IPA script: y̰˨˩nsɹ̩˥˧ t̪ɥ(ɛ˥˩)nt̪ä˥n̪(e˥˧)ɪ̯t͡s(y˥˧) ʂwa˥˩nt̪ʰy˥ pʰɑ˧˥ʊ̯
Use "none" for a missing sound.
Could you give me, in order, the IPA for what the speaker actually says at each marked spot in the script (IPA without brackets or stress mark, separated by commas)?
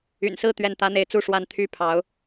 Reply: ɛ˥˩, e˥˧, u˥˧